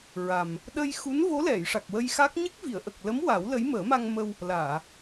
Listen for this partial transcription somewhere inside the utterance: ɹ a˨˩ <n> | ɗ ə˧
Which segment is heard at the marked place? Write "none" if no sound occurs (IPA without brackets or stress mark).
m